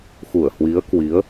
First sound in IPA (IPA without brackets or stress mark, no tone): x